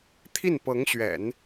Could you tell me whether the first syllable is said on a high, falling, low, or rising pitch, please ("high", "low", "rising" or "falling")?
falling